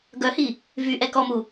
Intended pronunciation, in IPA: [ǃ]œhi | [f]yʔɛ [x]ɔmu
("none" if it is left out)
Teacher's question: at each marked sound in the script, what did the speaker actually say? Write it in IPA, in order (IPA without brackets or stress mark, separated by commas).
ɡ, v, k